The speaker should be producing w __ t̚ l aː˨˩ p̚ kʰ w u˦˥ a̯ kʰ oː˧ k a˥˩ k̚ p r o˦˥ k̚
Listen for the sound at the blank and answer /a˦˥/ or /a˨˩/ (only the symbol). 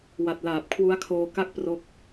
a˨˩